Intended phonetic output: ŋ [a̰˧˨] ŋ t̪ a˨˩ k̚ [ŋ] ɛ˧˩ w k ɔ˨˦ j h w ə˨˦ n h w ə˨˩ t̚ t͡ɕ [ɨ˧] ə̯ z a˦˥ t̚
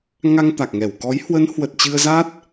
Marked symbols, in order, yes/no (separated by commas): no, yes, yes